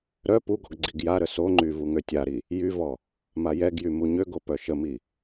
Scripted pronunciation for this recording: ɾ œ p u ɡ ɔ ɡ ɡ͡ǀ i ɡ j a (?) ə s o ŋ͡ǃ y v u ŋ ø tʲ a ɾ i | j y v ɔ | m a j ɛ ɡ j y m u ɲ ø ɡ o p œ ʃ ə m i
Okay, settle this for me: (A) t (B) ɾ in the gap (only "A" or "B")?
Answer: B